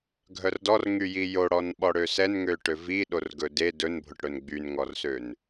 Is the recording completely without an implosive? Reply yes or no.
no